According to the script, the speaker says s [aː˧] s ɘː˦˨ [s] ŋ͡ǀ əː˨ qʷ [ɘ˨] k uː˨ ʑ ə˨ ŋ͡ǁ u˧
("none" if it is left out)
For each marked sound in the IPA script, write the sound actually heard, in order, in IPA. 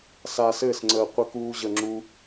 aː˧, s, ɘ˨

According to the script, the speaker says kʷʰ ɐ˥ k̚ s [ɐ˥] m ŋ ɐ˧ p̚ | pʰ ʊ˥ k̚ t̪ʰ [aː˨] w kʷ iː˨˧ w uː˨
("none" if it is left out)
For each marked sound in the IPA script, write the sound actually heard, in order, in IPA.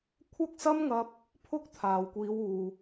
ɐ˥, aː˨

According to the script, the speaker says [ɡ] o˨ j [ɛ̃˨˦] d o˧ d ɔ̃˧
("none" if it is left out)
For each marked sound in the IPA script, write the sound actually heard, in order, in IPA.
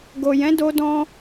ɡ, ɛ̃˨˦

